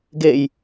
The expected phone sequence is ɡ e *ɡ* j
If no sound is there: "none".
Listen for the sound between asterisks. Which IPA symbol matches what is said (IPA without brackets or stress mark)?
none